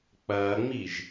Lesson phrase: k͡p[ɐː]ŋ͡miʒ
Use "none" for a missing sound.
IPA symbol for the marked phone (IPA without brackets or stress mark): ɐː